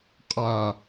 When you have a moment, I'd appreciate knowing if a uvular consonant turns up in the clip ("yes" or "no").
yes